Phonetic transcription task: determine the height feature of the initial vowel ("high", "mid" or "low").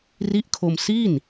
high